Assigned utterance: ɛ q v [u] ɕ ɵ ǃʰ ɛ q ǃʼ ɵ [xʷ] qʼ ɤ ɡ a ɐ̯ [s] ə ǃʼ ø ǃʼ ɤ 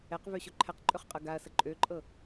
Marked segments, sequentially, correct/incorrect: incorrect, incorrect, correct

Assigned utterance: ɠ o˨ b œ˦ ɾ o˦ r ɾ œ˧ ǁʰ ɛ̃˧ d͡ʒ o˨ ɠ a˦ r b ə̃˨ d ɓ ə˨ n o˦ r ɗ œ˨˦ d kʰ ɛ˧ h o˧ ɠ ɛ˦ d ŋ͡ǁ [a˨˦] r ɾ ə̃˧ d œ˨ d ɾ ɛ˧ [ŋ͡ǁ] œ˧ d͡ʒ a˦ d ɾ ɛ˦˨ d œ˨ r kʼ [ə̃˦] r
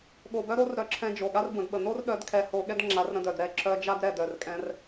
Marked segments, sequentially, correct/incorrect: correct, incorrect, incorrect

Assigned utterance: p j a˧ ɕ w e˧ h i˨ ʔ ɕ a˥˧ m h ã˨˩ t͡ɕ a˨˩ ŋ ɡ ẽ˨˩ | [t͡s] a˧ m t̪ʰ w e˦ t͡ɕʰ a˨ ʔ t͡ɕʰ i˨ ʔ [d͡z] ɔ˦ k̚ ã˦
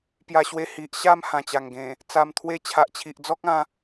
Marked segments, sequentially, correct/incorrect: correct, correct

